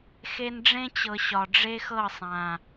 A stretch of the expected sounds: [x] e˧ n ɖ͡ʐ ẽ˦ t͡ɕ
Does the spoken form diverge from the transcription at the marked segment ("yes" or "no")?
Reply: no